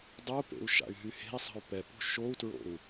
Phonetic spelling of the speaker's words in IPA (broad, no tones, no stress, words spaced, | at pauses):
dˤupḛu̯ ʃa̰y̯ɦyhe̤i̯sˤə̤y̯ pɛpṳ ʃou̯tɹo̰u̯